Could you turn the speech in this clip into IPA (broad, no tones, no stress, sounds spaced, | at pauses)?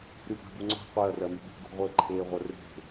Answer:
ɾ y b a̤ b u ŋ͡ǀ ɔ̤ qʷ e ɐ̯ r ɜ m y b ṳ ɡ ṳ ʁʷ ɘː ǃʰ eː ʁʷ ɜ r e̤